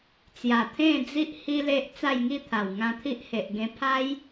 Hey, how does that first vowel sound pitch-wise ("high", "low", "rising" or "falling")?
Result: low